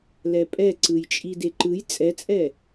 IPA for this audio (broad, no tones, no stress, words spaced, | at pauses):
lɛpʼɛǀɯj t͡ʃʼideǃɯj t͡sʼɛt͡sʼɛ